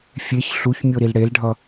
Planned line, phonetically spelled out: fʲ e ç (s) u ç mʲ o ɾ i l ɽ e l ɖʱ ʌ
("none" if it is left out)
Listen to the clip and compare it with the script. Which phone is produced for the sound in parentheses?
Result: ɬ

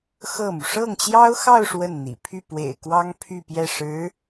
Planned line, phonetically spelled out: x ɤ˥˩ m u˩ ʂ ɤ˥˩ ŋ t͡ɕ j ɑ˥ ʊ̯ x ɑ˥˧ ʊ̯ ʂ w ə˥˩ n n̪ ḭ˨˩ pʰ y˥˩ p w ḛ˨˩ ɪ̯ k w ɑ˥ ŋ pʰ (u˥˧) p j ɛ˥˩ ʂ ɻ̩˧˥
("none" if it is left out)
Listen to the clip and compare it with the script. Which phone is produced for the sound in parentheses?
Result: y˥˧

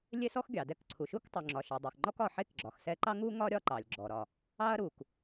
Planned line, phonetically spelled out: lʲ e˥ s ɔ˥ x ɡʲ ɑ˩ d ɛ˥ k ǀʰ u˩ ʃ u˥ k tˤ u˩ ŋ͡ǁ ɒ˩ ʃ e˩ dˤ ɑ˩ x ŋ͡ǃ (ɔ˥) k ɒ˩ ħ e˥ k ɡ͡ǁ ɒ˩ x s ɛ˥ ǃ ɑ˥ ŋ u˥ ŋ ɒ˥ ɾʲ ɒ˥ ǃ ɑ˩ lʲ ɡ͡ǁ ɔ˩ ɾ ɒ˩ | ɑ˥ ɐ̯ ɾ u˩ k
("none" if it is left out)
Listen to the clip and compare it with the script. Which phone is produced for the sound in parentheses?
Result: ɔ˥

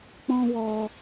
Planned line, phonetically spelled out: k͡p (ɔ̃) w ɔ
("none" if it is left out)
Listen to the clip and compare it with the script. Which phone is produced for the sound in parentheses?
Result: ɔ̃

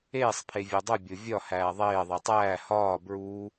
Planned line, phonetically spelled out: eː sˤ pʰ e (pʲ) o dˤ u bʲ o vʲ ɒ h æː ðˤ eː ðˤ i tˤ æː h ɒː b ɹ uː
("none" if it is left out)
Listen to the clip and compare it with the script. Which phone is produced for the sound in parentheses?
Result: vʲ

